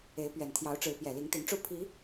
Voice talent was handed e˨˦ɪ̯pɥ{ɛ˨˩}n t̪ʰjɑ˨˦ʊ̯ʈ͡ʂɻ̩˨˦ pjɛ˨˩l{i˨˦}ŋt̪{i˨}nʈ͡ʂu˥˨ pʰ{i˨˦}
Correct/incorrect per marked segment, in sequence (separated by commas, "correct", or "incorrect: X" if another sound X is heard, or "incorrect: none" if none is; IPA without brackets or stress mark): correct, correct, incorrect: i˨˦, correct